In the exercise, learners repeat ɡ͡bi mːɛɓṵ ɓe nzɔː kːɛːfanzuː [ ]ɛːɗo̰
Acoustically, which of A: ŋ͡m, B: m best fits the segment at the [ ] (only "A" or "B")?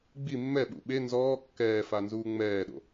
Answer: A